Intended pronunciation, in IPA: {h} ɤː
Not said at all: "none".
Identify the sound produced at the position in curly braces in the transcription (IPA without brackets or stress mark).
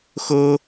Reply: x